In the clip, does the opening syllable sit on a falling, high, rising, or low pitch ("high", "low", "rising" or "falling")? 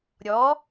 rising